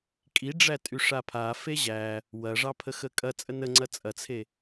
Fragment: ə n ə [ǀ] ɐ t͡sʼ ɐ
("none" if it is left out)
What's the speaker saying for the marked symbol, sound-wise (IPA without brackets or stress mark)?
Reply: ŋ͡ǀ